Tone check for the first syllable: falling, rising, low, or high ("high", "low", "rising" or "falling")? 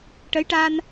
rising